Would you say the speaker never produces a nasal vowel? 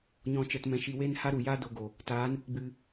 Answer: no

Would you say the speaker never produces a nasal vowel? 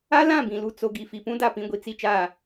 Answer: no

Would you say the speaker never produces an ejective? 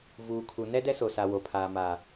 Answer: yes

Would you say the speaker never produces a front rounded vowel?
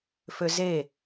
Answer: no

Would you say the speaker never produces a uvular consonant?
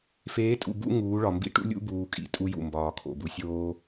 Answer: yes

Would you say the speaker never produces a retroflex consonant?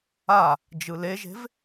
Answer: yes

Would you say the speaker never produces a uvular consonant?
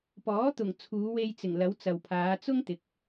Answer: yes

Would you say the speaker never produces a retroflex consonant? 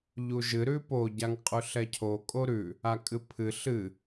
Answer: yes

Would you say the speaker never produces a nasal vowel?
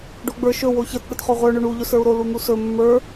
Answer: yes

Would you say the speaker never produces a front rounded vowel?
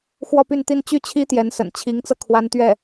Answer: no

